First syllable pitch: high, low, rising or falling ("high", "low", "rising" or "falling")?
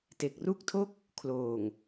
low